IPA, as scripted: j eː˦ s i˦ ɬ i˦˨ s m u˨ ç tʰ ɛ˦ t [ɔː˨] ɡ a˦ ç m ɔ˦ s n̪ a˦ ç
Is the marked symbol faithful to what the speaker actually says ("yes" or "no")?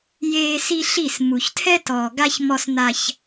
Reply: yes